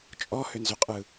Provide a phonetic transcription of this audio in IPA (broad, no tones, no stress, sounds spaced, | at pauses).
t͡ʃʼ ɔ h ʏ n z ʏ qʼ ɯ